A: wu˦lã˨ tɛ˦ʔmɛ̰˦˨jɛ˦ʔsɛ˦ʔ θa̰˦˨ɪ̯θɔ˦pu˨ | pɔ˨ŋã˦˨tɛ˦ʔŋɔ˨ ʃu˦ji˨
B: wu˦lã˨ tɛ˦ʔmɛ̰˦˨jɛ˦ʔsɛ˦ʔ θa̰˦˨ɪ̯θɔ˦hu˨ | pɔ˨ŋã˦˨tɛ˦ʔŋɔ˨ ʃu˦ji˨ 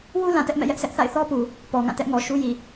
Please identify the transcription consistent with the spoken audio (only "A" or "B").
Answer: A